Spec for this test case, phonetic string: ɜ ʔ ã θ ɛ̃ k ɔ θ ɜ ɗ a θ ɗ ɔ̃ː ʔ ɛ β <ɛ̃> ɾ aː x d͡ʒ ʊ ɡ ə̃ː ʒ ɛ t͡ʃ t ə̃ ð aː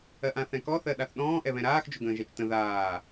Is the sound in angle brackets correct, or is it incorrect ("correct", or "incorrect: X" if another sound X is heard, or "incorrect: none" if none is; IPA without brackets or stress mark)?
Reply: correct